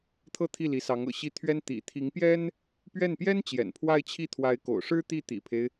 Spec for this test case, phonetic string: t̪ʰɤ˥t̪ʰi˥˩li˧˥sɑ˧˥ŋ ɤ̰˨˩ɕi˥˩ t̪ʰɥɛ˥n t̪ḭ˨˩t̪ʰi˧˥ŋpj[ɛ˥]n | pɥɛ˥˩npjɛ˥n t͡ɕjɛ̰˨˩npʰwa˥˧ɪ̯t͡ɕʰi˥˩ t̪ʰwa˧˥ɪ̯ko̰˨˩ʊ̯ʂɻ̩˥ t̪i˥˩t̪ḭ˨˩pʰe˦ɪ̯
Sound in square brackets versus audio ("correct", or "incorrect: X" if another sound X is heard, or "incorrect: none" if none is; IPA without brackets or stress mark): correct